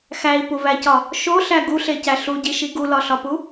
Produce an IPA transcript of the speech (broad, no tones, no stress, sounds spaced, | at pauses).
x æ i̯ p u v æ c ɒ | ʃ o ɬ æ ɡ u ɬ e c æ ɬ u ɟ i ʃ i ɡ u l ɒ ɬ ɒ p u